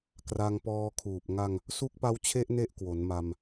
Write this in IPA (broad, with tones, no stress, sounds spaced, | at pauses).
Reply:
k r a˧ ŋ p ɔː˧ kʰ uː˨˩ p̚ ŋ a˧ ŋ | s u˦˥ k̚ p a˦˥ w t͡ɕʰ e˦˥ ʔ n e˥˩ ʔ k w o˩˦ n m a˧ m